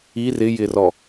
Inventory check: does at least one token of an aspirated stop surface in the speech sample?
no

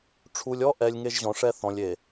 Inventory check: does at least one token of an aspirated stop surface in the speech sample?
yes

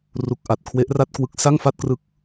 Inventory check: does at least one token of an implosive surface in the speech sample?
no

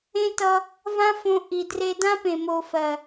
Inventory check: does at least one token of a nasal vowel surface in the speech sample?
yes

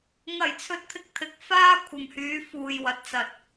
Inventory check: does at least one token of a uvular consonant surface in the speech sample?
no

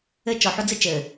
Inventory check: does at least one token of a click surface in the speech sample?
no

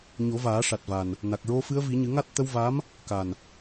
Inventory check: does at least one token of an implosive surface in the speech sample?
no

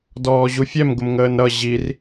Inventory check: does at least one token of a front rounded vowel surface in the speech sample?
no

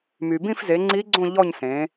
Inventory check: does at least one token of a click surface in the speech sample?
yes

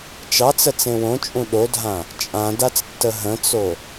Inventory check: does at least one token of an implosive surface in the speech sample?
yes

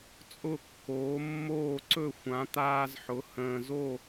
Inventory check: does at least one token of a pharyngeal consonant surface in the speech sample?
yes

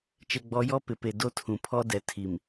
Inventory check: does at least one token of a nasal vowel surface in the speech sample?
yes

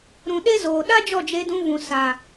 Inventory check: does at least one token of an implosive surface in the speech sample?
yes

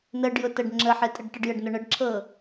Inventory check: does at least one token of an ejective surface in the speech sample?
yes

